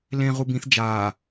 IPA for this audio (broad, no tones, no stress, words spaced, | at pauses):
lẽ ʁubĩθ d͡ʒaː